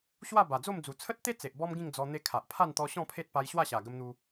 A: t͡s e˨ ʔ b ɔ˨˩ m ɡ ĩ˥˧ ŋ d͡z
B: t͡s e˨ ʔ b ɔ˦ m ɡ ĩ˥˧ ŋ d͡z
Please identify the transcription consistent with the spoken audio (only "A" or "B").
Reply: B